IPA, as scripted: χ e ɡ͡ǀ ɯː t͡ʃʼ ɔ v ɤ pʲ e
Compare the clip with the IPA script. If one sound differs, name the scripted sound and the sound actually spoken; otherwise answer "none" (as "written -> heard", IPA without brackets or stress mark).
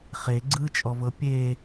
none